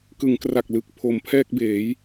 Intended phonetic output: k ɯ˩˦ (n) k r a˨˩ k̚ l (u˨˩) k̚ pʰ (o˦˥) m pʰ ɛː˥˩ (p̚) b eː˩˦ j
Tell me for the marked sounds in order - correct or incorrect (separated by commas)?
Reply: incorrect, incorrect, incorrect, incorrect